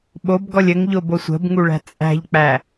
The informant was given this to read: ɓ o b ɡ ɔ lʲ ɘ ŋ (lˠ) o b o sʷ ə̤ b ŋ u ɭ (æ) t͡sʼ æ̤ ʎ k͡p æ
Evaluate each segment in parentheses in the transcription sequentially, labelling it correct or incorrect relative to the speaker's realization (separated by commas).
incorrect, incorrect